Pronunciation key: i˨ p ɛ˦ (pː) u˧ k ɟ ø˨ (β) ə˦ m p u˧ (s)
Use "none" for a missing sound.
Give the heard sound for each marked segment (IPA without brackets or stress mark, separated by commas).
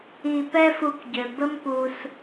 f, b, s